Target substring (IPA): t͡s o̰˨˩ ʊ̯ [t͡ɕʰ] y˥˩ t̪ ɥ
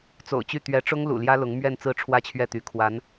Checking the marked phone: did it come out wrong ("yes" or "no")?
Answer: yes